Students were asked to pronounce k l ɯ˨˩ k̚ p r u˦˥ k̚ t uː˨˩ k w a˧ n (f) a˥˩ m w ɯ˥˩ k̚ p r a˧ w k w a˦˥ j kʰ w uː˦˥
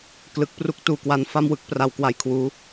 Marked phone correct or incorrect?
correct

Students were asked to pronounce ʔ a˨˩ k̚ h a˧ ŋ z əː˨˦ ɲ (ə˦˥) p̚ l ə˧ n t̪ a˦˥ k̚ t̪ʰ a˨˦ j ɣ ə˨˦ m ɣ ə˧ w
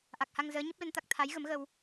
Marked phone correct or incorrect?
correct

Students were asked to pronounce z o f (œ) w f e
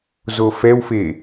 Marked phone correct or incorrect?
incorrect: ɛ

